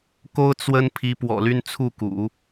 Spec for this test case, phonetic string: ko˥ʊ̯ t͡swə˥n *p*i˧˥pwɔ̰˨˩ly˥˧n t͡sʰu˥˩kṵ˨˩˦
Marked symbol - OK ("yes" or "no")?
no